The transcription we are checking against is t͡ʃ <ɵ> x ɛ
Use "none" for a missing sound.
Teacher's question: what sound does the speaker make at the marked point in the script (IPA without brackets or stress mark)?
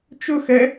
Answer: ɵ